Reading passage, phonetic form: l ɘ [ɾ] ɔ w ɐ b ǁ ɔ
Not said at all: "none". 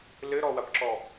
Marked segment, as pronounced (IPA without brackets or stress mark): ɾ